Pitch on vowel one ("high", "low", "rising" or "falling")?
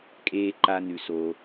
high